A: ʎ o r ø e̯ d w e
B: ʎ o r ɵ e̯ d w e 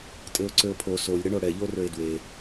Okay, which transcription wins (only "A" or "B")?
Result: A